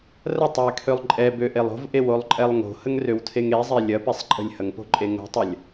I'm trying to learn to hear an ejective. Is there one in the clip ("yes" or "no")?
yes